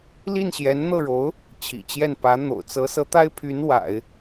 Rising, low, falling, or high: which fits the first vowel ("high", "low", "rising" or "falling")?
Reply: falling